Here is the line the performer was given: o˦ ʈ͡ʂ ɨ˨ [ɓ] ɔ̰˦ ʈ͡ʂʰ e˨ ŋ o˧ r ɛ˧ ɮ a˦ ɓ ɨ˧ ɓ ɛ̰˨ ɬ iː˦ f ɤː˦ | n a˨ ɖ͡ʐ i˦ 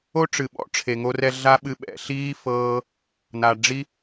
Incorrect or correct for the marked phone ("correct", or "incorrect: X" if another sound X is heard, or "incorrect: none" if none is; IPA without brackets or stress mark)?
correct